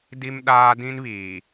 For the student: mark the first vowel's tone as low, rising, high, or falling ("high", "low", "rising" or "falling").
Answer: high